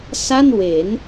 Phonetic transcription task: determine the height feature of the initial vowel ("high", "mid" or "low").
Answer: low